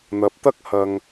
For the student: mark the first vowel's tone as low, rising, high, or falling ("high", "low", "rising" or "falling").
low